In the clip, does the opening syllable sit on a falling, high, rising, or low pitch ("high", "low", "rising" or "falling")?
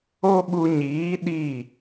high